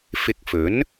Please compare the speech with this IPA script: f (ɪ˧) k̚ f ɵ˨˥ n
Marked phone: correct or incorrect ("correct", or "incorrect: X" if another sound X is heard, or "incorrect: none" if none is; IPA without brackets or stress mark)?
correct